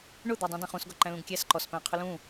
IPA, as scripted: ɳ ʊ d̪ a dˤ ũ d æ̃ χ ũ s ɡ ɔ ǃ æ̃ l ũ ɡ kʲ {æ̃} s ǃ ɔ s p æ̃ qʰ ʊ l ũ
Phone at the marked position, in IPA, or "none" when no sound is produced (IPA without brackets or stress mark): æ